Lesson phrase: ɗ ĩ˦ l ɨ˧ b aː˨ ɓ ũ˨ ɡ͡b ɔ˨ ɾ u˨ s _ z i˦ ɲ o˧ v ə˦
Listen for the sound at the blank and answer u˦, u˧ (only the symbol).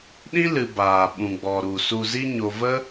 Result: u˧